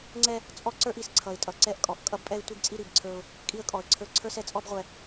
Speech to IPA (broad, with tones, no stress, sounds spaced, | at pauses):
ŋ͡ǀ ɛ˦ | t͡sʼ ɔ˦ ǀ ə˞˦ ʔ i˨ s ǀʰ ʌ˨ ɪ̯ tʼ ʌ˨ ǀ ɛ˦ ʔ kʼ ɔ˨ ʔ kʼ ʌ˦ b pʼ ɛ˦ ɪ̯ tʷ i˦ ɡ t͡sʼ i˦ ɾ i˨ b ǀʰ ə˞˦ ʊ̯ | kʼ i˦ ə̯ kʼ ɔ˨ ə̯ ǀʰ ə˞˦ ǀʰ ə˞˦ s ɛ˨ t͡sʼ ɔ˦ b ʁʷ ɛ˨